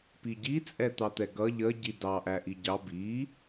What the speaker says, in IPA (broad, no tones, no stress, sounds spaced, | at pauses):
p i ɟ i t͡sʼ ɛ t̪ ɑ t̪ ɛ ɡ ʌ ʎ ə ɟ i d ɑ ʔ æ ʔ i ɟ ɑ b i